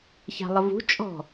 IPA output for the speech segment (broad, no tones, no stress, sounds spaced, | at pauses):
ç a̤ lˠ ə v ṳ t͡ʃʼ ɔ̤